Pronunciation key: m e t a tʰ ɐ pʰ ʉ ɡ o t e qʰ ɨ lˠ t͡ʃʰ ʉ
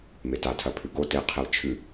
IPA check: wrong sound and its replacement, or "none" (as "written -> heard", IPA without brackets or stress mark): ɨ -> e